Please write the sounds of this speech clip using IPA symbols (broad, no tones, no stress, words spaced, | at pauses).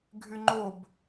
ɡʱyŋ͡ǃob